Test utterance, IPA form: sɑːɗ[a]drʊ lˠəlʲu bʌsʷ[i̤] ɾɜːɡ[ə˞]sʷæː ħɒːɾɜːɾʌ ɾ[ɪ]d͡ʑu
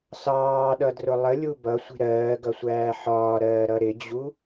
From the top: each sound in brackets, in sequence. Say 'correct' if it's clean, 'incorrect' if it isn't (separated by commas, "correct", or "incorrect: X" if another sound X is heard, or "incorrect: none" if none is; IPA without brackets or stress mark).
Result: incorrect: ʌ, correct, incorrect: ʌ, correct